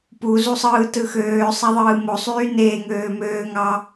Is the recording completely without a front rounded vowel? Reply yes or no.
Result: no